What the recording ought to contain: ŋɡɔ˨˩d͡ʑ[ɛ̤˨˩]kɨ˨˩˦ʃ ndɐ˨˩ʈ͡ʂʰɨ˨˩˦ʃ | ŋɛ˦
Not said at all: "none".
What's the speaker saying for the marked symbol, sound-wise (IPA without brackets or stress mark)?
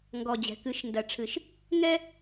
ɛ̤˨˩